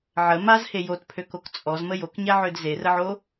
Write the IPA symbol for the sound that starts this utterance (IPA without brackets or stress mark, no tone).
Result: ʕ